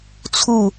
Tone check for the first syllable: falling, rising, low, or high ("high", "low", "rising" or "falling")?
falling